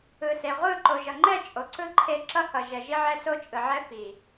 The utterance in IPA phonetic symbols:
ɯ˨se˨ ʁʷɯ˦˨ ǃo˨ʒʌ˨ŋ͡ǃɛ˦˨ t͡ʃʼo˨ǀɯ˦ ǃʰe˦ ǁʌ˦hʌ˨ ʒɛ˨ʒi˦ʕɛ˦ so˦t͡ʃʼɯ˨ʕɛ˦fi˨

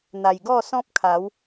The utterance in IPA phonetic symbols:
n̪a˨˩jɡɔ˥˧sɔ̃˦p̚kʰa˨˦w

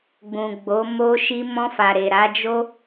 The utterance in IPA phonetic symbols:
ɡ͡bũ˨ɡ͡bo˨˦ mo˧ʃi˧ mɔ̃˧fa˨ɾe˨ ɾa˨˦d͡ʒo˦

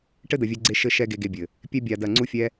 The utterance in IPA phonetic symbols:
ʈɘ˦d̪ɐ˨vʲɛ˧ɡ͡ǀe˧ ʃɘ˧ʃɛ˧ ɡe˧ɡe˧bʲɘ˨ | pʲɛ˦ bʲa˧dɐ˦˨ ŋ͡ǀu˦fʲɛ˦

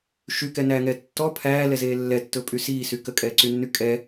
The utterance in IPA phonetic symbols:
ʃykɛnæːŋɛː tːɔ pʰæːlɛzeː lːɛtːɵpʼy siːsy kəkʼɛːǀynːy kʼɛ

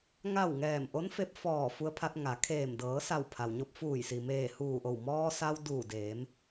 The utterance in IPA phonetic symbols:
ŋa˥˨w ŋɛː˧˩mʔo˧˥nfe˧p̚ fɔː˧˩ fu˧ə̯pʰa˧t̚ŋa˩˧kʰeː˧˩m dɤː˩˧sa˧˩w pʰa˩wɲo˧p̚fuː˧˩jsi˩ meː˧˩huː˧˩ʔo˧˩w mɔː˧sa˧w duː˧˩deː˩˧m

